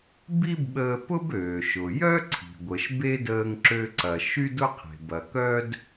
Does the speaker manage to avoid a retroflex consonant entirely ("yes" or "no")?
yes